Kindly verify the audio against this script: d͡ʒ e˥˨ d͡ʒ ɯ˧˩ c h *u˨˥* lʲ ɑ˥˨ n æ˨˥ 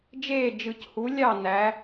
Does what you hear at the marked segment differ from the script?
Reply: no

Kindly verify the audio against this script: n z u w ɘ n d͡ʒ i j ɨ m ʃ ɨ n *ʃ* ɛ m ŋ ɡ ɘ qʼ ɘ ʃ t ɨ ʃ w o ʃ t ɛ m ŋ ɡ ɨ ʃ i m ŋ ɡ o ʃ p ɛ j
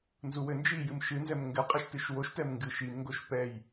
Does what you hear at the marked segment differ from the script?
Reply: yes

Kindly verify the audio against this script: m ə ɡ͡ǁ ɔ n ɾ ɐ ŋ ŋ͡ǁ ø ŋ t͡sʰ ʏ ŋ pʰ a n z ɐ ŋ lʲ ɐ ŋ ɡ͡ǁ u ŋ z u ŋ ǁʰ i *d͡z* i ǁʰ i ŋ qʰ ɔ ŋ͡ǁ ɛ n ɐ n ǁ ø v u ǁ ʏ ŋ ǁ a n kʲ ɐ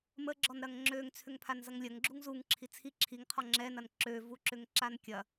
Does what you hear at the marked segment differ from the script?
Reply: yes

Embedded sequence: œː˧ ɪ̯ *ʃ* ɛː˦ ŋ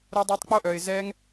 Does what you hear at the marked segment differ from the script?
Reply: yes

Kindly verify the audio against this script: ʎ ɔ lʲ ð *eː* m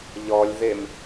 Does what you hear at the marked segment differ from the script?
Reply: yes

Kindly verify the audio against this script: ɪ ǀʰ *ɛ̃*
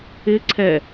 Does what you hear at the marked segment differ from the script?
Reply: yes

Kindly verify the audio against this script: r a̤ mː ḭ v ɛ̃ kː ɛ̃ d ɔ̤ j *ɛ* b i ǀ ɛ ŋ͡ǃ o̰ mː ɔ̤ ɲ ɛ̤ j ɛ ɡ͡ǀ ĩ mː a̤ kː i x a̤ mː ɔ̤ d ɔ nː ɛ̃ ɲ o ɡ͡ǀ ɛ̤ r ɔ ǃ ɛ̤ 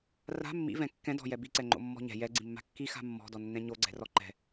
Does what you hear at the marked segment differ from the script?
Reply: no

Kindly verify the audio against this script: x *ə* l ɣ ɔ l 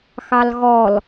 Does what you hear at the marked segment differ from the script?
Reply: yes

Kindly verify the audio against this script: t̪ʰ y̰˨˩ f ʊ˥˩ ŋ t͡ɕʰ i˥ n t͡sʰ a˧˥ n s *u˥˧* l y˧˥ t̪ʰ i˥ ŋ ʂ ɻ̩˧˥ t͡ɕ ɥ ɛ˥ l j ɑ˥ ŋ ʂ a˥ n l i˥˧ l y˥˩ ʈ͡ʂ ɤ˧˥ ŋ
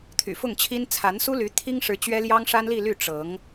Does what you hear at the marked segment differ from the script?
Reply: yes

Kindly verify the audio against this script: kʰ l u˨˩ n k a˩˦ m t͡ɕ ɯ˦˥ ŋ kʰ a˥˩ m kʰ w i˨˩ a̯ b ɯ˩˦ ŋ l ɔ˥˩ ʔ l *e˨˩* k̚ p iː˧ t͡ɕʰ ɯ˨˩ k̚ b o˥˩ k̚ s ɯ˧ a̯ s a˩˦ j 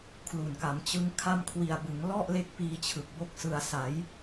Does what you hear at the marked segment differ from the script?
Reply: yes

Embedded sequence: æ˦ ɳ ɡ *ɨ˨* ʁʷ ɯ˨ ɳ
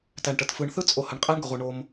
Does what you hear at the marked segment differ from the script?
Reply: yes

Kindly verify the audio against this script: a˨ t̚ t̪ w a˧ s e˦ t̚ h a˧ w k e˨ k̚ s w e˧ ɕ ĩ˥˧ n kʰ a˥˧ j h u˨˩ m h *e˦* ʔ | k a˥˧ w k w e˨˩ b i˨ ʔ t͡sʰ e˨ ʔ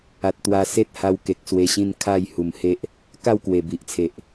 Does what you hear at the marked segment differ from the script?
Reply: no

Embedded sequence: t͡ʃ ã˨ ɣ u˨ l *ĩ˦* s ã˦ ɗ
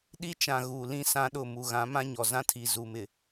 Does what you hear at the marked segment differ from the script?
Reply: no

